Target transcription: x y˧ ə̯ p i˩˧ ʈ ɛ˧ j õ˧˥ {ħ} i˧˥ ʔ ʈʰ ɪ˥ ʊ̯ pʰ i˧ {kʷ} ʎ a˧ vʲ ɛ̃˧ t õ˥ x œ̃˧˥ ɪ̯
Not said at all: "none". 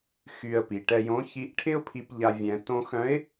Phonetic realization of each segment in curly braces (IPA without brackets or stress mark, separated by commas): ç, p